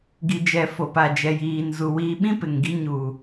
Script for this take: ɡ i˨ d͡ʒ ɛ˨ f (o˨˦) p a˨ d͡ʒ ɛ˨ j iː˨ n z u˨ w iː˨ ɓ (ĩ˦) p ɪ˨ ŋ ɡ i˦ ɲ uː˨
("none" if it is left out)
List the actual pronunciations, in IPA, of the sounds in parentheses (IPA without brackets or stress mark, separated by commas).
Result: o˨, ĩ˦